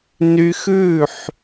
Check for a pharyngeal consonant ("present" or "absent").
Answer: present